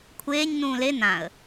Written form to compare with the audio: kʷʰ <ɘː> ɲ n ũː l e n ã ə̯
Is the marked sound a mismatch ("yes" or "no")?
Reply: yes